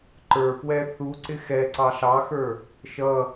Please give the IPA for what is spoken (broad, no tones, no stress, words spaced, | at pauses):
ǃə˞pwɛ θuǀɪ xɛǀɑ ɬɑxə˞ | ʃʌ